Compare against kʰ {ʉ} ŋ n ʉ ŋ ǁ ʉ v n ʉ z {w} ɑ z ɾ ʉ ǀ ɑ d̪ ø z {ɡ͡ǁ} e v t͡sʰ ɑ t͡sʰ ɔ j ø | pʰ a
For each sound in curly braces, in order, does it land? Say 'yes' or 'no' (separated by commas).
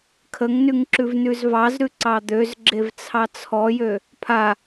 no, no, yes